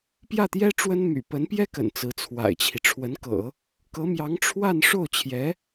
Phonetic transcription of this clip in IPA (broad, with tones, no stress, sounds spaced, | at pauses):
p j ä˥˩ t̪ j ɛ˥ ʈ͡ʂ w ə˥ n m y̰˨˩ p ə˧˥ n p j ɛ˥ k ə̰˨˩ n t͡s ɹ̩˧˥ t͡sʰ w a̰˨˩ ɪ̯ t͡ɕʰ i˦ ʈ͡ʂʰ w ə˧˥ n k ɤ̰˨˩˦ | k ɤ˧˥ m j ɑ˧˥ ŋ ʈ͡ʂʰ w a˥˧ n ʂ o˥˩ ʊ̯ t͡ɕʰ j ɛ˧˥